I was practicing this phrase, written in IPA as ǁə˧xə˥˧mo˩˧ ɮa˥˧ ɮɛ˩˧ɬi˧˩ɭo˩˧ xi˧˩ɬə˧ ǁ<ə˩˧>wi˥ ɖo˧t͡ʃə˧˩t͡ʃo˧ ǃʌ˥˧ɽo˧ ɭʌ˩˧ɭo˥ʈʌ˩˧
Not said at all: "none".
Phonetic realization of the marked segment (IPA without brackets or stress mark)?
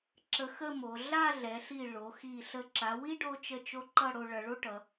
a˩˧